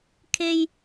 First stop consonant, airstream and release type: aspirated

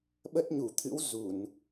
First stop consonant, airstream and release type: implosive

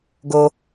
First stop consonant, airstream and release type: plain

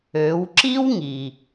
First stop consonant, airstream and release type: click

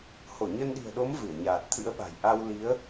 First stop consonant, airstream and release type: implosive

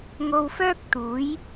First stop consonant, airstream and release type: plain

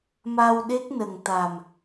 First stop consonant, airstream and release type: implosive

